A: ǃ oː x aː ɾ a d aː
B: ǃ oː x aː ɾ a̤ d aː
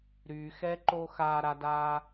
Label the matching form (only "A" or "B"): A